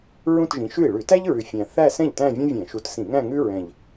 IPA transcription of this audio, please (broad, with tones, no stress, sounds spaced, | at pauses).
ɹ ũ˥˧ t ʒ ĩ˨˦ ʃ ʉ˥˩ i̯ ɭ ʉ˧˩˧ t æ˥ ʎ ɹ ʉ˨˩ fʲ æ̃˨˩ θ æ˥˧ s ɛ̃˥˩ ʎ t æ̃˥˧ vʲ õ˥ vʲ ɛ̃˧˩˧ ʃ u˨˦ t s ĩ˧˩˧ ŋ æ̃˥˧ ŋ ʉ˥ ɹ ɛ̃˨˩ ʎ